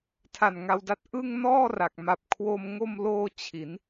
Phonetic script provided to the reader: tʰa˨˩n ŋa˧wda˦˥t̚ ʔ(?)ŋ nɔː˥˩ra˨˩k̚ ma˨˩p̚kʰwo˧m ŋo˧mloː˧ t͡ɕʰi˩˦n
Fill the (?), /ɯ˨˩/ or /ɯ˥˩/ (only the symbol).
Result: ɯ˥˩